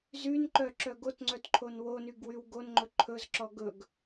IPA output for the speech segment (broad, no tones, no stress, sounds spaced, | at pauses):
z y n ǃ œ ǁ œ ɡ o t ŋ͡ǀ œ t ǃʰ o n w o n y ɡ w y w ɡ o n ŋ͡ǃ ɵ ǃʰ ɵ z ǁ ɔ ɡ ɵ ɡ